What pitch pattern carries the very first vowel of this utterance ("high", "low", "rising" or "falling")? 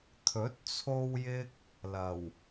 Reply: rising